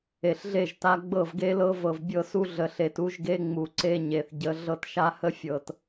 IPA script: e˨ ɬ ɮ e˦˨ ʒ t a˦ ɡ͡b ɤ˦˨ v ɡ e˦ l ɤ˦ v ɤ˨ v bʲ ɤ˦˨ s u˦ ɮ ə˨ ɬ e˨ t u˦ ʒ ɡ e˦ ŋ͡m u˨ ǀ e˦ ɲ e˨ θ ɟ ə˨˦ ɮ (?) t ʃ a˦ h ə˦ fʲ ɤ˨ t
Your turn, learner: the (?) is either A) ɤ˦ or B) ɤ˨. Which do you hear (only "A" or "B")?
A